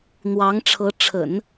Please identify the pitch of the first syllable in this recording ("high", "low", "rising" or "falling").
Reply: rising